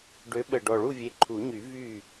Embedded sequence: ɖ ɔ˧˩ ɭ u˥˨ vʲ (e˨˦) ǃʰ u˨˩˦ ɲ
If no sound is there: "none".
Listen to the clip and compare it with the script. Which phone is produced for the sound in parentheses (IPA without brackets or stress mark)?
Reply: e˨˦